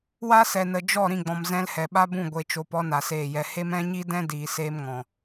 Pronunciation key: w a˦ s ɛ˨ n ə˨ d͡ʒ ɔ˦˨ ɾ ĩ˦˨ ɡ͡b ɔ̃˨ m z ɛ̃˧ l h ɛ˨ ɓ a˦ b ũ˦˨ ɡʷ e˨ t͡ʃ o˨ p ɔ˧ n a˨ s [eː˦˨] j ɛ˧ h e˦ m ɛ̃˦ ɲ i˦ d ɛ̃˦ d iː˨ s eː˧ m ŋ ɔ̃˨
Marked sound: correct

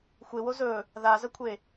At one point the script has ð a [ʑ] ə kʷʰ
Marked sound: incorrect: z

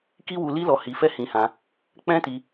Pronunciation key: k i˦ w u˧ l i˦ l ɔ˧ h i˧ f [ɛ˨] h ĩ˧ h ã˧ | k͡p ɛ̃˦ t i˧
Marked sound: incorrect: ɛ˦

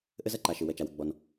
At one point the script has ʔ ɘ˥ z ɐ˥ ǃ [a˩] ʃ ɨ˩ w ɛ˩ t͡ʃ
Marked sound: correct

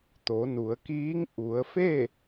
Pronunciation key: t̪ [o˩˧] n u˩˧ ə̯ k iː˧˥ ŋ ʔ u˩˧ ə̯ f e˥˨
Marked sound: correct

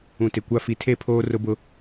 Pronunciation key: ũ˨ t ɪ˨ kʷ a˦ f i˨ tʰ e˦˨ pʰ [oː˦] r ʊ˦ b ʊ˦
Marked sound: correct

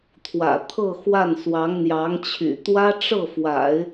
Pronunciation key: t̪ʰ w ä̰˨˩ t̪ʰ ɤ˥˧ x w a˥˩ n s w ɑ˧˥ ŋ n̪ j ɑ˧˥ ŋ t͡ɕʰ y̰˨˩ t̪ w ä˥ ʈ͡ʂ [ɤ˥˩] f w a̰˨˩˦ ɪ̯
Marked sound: correct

